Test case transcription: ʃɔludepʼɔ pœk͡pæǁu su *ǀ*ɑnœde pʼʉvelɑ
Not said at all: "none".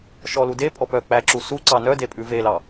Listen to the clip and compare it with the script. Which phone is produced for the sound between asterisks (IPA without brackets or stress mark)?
ǀ